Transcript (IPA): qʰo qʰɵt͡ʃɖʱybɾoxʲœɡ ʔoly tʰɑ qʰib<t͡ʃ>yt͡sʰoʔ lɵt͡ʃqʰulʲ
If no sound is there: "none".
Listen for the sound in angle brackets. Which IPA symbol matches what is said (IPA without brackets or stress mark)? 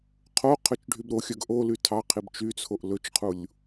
t͡ʃ